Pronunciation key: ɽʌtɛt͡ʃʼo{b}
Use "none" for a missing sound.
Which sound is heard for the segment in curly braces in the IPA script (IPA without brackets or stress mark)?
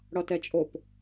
p